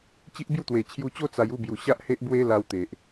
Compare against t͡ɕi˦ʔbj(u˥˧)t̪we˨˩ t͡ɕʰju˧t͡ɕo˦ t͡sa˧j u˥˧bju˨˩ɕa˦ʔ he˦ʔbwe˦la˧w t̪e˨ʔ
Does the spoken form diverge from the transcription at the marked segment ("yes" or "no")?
no